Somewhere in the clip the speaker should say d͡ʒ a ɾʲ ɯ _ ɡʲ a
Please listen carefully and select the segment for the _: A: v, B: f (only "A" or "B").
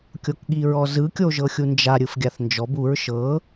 B